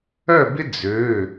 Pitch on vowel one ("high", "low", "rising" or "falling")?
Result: falling